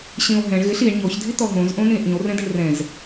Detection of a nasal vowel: present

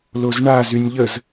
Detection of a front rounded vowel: present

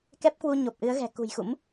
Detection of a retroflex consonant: absent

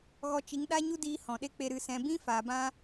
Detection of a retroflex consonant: absent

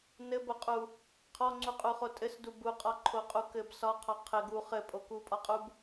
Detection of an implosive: absent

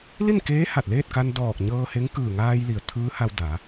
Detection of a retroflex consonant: absent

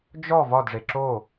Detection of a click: present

